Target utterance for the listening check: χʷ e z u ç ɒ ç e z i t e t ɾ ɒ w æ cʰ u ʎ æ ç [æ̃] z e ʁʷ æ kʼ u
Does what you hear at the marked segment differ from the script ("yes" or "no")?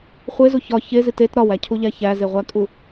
yes